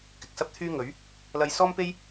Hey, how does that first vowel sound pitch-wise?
low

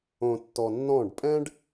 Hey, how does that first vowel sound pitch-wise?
low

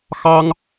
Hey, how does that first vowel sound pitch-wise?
high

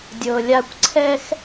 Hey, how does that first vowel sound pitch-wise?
low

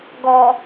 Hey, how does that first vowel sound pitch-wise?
low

